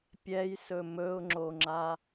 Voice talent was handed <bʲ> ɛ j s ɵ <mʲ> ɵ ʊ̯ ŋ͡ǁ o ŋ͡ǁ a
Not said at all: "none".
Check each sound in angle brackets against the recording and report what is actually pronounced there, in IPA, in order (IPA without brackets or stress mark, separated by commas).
pʲ, m